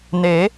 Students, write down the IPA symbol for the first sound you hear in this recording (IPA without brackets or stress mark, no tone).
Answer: n